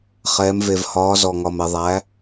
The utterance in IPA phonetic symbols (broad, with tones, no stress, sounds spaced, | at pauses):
χ ɛː˩˧ m v e˩ v h ɒː˩˧ z ɔ˩ ŋ ɒ˩ m e˩ ðˤ æ˩˧